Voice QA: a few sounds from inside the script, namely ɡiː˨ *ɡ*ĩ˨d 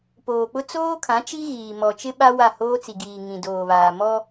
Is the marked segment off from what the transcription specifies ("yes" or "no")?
yes